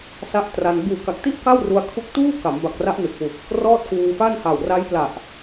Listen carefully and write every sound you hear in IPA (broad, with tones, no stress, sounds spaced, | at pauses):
s a˦˥ ʔ t r a˧ n b uː˨˩ k a˨˩ k̚ t i˥˩ ʔ k a˥˩ w r u˧ a̯ kʰ u˦˥ k̚ t uː˥˩ k a˩˦ m b a˨˩ k̚ r a˦˥ ʔ n ɯ˨˩ k̚ w u˨˩ k̚ | r ɔː˥˩ t̚ k uː˧ f a˥˩ n h a˨˩ w r a˦˥ j p l a˨˩ ʔ